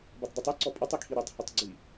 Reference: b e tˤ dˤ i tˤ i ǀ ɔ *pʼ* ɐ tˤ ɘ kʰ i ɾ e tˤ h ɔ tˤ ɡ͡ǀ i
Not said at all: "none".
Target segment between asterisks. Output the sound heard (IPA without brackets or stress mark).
pʼ